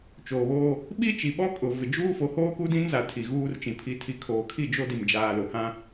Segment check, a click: absent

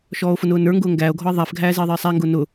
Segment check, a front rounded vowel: absent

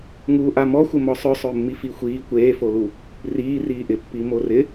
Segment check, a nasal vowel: absent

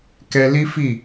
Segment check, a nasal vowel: absent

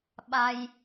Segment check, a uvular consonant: absent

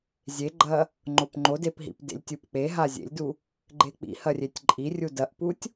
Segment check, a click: present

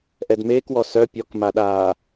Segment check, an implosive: present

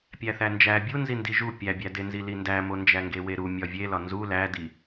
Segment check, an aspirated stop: absent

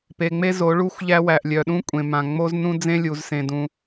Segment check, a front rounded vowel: present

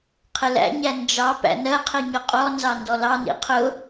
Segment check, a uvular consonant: present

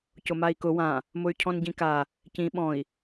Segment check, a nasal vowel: present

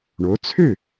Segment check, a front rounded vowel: present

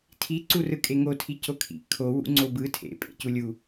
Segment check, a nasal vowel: absent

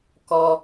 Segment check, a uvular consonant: absent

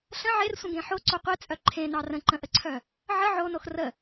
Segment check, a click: present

